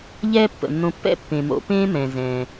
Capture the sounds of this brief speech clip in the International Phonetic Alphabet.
ʎɛː˦pːə̰˩nːõ˨pːɛ̰˥ pːẽ˩mo̰˨ pẽː˥mɛ̃˩zɛ̃ː˩

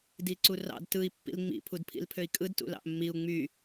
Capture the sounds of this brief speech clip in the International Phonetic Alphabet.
diǀurɑ̰d tɯi̯ pːḭlŋ͡mḭ pʰudpʰḭlpʰøi̯kʼɯd tṵlɑ̰ʔmːiu̯ ŋ͡my

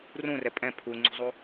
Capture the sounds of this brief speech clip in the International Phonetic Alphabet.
rũrɛ pʼɛ̃ pʰuŋ͡ǀṳzˤu

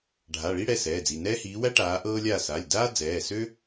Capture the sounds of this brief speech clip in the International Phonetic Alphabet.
ɖʱa˩˧˩ɭi˥ ɽɛ˩˧˩sɛː˩˧˩d͡zi˩˧˩ nɛː˥hiː˨˥wæ˥ ʈaː˨˥ ʔɤː˥lʲaː˥˨ sa˩˧˩lʲdaː˥ d͡zɛː˩˧˩sø˥

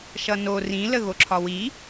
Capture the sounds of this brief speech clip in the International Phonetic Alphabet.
ʃʌno rĩ ləɣoǁʰɒwi

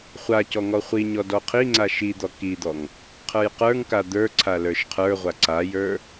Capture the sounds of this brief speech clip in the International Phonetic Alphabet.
χʷacɔ ŋɔχʷiɲɔ dɔqʰiŋ͡ǀa ʃid̪ɔ kid̪ɔŋ | qʰə˞jqə˞ŋka d̪ə˞ǀʰa lə˞ʃqʰə˞ʁʷa ǀajə˞

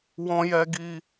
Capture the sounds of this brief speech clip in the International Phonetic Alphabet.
wɔ̃˨jɛ˨ɡi˨

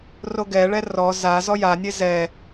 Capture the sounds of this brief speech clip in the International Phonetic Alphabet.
roɡɛɭɛ rɔ za zɔjanʲe zɛ

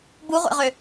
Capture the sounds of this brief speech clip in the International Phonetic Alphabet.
buʁʷɛ̰ʁø

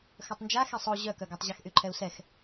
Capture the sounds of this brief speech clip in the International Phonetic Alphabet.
xœtˤnd͡ʒa xɛsˤo ʑœkœɡatˤ ʑaxʔyǃʰɛu̯sɛx

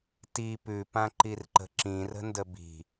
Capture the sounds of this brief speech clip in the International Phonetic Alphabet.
ti pʉpãǃirǃə̤ ǁĩrə̤ndə bi̤

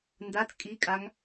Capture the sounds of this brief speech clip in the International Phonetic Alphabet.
ndat kʼikʼaŋ

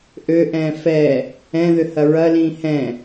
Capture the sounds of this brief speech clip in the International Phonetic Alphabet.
ʔøʔɛ̃ː fɛ | ɛ̃ðʏhɐ ɹɐlĩː hɛ̃

